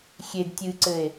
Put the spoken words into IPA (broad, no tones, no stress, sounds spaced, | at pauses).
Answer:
xʲ e d tʲ ɨ ǀ ɘ e̯